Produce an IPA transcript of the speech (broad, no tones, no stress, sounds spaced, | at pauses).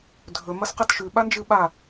dʱ ɵ m ɐ s q a t ʃ ʉ ɓ a n d͡ʒ ɨ ɓ a